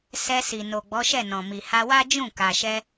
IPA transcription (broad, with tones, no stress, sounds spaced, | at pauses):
s ɛ˧ s i˨ n o˨ ɡ͡b ɔ˨˦ ʃ ɛ˦˨ n ɔ̃˨ m i˨ h a˧ w a˦ d͡ʒ ũ˦˨ k a˨ ʃ ɛ˧